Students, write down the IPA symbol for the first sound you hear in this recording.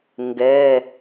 ŋ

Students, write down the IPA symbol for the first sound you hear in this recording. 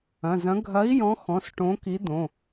ɐ̃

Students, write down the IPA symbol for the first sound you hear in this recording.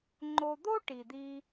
ŋ͡ǃ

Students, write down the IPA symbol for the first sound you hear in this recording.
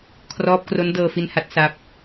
kʰ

